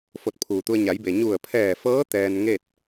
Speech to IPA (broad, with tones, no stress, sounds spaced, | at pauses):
f o˧˩ t̚ pʰ uː˩ t̪ u˧ ə̯ ɲ a˩˧ j b e˩ ɲ u˧˩ ə̯ pʰ ɛː˧˩ f ɤː˧˥ t̪ ɛː˧ n ŋ e˥˨ t̚